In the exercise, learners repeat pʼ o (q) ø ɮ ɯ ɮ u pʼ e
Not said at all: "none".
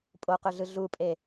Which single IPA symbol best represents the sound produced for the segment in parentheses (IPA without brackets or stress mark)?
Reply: q